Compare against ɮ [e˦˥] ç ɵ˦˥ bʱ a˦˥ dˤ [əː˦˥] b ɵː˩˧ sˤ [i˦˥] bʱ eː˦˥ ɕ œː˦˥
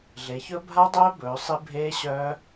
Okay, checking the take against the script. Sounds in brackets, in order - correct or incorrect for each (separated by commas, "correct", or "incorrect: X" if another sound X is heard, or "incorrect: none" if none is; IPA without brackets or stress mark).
incorrect: e˩˧, incorrect: œː˦˥, correct